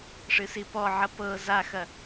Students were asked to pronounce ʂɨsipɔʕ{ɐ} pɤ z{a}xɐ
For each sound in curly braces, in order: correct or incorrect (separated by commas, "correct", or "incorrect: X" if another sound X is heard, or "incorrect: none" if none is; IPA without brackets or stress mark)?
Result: correct, correct